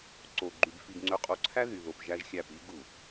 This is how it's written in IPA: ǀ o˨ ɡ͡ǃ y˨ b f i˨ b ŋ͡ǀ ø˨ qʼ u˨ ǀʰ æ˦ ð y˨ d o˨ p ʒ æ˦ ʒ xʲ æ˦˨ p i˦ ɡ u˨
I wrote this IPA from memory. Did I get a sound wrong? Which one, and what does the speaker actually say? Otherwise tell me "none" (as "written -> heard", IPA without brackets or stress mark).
d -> ð